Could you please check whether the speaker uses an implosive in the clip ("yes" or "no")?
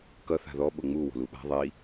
yes